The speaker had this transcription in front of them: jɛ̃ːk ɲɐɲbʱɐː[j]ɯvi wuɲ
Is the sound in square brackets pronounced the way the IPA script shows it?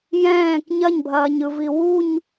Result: no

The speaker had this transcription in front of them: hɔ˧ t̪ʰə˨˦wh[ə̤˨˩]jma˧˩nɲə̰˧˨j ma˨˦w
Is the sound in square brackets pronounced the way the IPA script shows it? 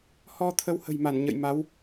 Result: yes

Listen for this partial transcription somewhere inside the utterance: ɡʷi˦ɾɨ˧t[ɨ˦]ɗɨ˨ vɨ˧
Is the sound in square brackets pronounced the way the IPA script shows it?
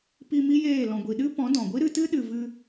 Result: yes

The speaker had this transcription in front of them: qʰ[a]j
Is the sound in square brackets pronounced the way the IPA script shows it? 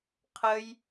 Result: no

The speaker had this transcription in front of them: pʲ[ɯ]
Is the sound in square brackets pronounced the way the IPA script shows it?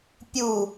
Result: no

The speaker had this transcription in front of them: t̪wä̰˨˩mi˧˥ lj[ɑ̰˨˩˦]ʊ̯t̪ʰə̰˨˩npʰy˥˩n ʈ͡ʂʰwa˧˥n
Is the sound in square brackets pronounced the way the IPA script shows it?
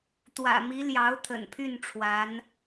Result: no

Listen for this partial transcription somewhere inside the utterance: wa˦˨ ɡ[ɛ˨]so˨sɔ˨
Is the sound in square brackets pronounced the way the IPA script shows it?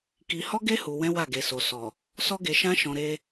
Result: no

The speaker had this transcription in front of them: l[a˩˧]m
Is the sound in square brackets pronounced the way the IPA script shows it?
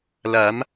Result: yes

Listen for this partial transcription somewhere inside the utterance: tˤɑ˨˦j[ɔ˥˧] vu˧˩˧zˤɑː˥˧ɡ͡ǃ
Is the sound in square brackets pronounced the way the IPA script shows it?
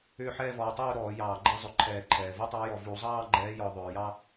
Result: no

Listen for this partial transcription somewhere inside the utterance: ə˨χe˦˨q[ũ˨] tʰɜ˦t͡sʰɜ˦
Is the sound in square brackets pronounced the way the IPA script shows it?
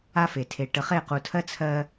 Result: no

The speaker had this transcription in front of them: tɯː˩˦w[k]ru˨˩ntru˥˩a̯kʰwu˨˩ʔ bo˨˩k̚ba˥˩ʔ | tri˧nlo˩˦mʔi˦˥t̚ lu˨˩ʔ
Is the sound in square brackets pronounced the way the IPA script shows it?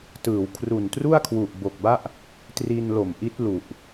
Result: no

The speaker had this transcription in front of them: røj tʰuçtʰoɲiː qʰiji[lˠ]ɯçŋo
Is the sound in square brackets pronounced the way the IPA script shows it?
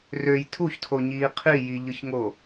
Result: no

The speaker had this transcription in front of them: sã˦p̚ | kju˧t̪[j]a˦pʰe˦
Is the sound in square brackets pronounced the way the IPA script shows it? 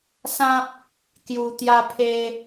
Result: yes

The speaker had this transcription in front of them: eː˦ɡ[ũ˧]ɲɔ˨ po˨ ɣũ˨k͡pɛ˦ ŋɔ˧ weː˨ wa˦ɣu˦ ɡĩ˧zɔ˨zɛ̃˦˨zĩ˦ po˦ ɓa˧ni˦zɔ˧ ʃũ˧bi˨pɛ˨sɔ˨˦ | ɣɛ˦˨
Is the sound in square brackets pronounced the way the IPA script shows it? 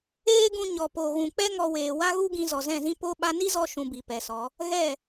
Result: yes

